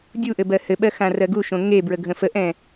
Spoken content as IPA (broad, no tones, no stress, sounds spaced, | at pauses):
dʲ u ʔ ɘ b ɜ h ɘ ɓ ɜ x ã r ɜ ɡ u ʃ õ ŋ e b ɹ ə ɡʱ ə̃ f ə ʔ ɛ̃